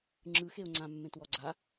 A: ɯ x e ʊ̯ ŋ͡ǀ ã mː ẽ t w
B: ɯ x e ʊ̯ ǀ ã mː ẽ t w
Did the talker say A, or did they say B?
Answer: A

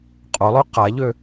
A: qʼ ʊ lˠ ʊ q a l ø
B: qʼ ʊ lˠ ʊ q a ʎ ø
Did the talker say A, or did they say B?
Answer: B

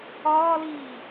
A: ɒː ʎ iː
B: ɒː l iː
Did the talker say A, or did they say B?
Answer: B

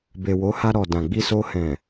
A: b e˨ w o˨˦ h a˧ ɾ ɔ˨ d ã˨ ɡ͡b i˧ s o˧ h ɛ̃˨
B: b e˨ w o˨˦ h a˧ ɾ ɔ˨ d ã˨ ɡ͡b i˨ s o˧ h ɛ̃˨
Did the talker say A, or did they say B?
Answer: A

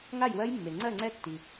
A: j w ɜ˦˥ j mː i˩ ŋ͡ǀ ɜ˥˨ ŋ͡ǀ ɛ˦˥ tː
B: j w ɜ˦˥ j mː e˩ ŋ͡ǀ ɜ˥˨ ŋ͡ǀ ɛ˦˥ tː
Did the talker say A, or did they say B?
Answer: B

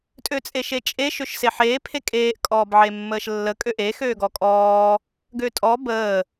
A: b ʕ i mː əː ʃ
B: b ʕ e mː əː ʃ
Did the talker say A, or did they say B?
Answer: B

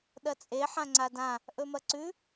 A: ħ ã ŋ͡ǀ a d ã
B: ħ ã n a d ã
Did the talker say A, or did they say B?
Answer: A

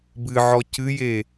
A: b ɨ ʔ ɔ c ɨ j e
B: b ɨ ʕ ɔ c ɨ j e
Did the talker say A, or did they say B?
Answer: B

